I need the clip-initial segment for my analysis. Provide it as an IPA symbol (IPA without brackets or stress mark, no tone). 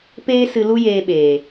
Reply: p